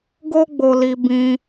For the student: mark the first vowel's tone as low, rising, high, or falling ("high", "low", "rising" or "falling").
high